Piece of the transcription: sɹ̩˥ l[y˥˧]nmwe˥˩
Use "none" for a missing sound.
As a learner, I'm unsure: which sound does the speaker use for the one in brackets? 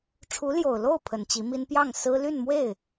y˥˧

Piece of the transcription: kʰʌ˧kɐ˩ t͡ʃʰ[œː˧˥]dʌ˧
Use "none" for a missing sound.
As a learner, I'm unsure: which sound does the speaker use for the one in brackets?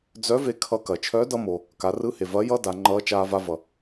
œː˧˥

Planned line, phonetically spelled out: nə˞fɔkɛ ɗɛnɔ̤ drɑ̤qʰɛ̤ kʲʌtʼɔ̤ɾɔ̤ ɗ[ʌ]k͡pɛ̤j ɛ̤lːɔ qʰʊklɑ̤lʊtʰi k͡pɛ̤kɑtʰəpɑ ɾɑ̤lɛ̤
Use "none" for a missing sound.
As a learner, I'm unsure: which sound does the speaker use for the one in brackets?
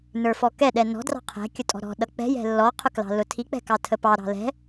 ʌ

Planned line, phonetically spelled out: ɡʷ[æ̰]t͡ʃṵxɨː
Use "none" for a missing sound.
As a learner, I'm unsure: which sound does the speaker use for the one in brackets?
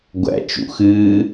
æ̰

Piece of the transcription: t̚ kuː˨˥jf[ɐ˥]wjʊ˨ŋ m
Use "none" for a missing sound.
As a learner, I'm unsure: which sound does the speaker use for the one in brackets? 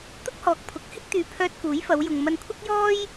ɐ˨˧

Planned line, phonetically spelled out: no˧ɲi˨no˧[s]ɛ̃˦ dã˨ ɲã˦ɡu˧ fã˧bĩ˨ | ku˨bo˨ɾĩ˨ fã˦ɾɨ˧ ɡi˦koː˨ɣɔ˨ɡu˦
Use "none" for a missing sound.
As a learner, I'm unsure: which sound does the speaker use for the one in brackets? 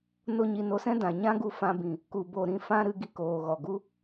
s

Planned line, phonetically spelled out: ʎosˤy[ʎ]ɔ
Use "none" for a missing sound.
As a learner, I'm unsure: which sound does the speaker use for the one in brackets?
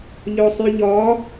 ʎ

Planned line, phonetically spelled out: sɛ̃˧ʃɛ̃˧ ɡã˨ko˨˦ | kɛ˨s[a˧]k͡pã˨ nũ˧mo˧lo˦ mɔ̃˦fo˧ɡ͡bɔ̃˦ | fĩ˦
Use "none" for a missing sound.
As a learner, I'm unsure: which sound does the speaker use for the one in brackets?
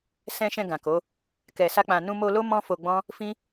a˧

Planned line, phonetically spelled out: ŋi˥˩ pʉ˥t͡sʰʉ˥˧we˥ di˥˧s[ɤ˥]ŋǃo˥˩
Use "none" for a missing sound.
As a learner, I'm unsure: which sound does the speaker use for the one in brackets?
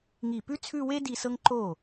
ɤ˥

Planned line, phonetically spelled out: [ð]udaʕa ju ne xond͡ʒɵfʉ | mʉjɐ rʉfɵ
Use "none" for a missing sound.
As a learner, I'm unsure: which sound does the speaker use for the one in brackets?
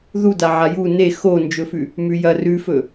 ð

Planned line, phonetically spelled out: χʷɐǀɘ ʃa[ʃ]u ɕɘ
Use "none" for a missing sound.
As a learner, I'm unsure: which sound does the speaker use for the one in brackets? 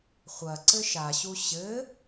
ɕ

